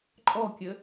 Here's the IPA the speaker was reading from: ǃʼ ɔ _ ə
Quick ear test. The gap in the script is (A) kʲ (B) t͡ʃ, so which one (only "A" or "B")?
A